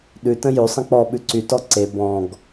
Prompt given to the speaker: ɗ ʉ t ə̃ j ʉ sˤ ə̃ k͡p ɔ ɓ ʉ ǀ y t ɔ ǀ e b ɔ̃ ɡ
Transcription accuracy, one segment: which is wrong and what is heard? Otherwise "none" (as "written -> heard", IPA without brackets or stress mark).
none